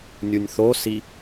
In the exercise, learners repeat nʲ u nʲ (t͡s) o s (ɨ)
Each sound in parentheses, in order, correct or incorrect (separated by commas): incorrect, incorrect